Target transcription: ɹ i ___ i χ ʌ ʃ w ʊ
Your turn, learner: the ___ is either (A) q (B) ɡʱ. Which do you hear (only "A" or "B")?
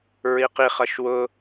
A